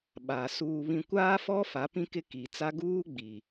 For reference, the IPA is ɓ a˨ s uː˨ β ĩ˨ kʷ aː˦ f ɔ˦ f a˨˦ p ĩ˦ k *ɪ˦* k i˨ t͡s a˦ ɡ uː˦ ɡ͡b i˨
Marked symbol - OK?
yes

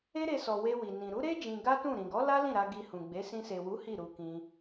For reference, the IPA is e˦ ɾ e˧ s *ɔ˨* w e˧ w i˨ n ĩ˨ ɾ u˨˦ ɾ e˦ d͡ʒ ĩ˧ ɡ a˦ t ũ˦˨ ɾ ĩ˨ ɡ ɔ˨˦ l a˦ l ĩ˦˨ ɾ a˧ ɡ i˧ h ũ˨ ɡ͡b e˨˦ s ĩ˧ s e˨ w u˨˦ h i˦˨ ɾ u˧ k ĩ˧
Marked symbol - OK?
yes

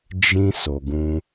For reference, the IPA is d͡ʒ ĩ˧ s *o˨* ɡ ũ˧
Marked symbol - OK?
yes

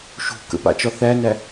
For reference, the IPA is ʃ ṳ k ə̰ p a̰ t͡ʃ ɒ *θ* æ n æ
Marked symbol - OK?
yes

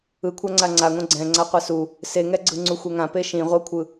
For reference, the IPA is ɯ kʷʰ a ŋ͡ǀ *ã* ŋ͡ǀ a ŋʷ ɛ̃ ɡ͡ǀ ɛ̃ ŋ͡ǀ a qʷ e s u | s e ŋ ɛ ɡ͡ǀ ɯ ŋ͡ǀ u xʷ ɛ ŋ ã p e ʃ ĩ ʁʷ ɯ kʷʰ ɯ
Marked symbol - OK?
no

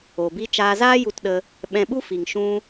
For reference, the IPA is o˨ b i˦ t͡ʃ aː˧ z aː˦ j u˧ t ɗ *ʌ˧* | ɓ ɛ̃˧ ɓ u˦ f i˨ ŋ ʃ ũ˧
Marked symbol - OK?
no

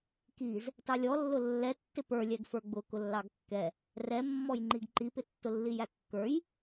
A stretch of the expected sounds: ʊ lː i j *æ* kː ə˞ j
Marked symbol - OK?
yes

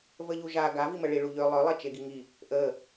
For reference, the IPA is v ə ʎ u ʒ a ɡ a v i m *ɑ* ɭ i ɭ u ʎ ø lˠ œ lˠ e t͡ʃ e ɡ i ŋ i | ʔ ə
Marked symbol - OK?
no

